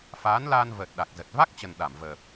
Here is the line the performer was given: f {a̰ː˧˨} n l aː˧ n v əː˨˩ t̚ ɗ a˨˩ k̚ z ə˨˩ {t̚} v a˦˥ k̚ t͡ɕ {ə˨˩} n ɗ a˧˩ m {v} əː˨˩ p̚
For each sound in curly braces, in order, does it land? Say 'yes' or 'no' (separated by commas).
no, yes, yes, yes